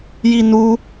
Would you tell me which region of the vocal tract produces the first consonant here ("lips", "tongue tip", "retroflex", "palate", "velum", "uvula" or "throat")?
palate